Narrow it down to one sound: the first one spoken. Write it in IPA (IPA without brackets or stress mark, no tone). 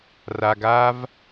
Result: r